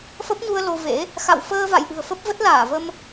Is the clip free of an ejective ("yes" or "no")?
yes